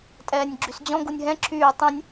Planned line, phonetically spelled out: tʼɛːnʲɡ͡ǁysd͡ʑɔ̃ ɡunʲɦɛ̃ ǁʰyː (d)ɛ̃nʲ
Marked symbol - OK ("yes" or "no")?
no